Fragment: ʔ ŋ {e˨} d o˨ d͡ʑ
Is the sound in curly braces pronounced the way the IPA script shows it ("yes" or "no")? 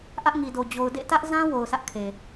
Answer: no